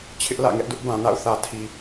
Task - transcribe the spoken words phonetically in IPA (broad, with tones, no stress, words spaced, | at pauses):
t͡ɕʰɪ˦ʔlä̰˦˨ŋɛ˦ʔ dʊ˦ʔbã˨na̰˦˨ʊ̯ θä˨tʰi˨